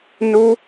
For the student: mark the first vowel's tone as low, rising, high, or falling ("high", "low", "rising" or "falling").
high